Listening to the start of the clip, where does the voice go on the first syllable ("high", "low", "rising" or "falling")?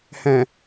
low